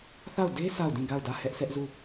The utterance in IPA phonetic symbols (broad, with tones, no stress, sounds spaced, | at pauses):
θ a˦˨ ʊ̯ d e˦ sʰ a˦˨ ʊ̯ d ĩ˦˨ ɡ a˦˨ ʊ̯ d ä˦˨ h ɛ˦ ʔ sʰ ɛ˦ ʔ z u˦˨